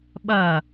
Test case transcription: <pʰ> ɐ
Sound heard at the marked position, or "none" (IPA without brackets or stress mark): ɓ